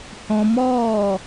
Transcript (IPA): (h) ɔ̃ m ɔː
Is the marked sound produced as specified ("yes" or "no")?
yes